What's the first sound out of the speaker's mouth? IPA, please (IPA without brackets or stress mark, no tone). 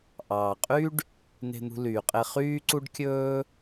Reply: ʔ